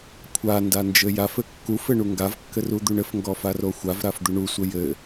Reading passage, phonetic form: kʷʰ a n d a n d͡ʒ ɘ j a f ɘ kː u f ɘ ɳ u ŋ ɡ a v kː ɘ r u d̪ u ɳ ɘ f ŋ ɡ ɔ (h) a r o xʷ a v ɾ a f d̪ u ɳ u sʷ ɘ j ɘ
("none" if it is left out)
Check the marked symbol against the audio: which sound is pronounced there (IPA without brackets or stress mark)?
f